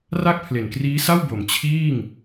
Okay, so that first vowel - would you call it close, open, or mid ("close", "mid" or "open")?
open